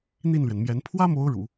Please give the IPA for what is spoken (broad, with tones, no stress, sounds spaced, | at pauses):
n̪ i˥˩ n l ɥ ɛ˩ n m j ɛ˧˥ n pʰ w ä˥ m o˧˥ ʊ̯ ɻ ṵ˨˩˦